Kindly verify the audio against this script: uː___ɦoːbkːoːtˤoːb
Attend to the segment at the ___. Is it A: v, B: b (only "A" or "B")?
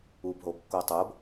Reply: B